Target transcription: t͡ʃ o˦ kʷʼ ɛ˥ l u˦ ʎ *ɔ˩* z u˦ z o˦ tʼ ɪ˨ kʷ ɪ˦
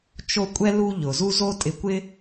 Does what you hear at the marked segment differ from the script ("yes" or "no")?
yes